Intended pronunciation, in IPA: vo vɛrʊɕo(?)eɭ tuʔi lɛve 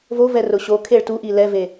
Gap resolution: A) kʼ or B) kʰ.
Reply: B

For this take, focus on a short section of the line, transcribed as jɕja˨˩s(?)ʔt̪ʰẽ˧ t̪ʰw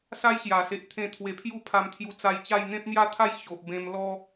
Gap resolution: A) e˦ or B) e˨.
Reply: B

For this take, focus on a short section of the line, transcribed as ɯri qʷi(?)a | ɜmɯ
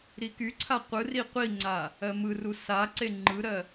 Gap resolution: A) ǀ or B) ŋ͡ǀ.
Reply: B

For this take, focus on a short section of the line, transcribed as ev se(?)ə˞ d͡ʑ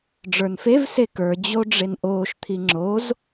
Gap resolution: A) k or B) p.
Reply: A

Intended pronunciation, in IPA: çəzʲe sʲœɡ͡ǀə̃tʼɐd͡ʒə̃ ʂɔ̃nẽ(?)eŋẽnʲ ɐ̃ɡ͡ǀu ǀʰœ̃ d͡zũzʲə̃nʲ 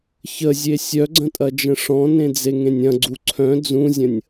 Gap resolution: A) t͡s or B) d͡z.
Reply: B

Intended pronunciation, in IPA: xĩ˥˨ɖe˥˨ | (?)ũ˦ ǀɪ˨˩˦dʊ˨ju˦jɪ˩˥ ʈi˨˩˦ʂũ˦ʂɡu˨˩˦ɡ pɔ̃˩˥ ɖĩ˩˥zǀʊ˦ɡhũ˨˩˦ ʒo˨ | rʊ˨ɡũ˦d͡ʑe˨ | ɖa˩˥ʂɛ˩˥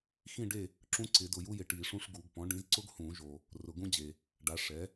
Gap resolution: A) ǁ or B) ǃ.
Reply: A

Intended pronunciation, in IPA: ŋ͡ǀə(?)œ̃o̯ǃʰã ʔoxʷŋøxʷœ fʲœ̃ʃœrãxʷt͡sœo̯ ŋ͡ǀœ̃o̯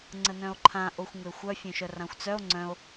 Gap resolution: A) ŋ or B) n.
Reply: B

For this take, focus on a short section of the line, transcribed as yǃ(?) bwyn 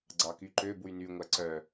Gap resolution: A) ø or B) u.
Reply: A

